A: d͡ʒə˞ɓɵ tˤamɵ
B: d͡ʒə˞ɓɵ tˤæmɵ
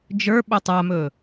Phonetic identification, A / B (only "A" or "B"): A